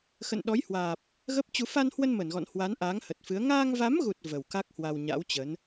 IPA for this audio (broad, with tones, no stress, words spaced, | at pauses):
xə̰˧˨nɗɔ˨˦jhwaː˨˩p̚ | ɣə˦˥p̚t͡ɕu˧ fa˧nhwə˧n mə˧˩nɣɔ̰˧˨nhwa˨˦n ʔaː˨˦ŋhə˨˩t̚fɨ˨˦ə̯ ŋaː˧ŋva˨˦mɣu˨˩t̚ və˨˩wka˦˥k̚hwa˧wɲa̰˧˥w t͡ɕə˨˦n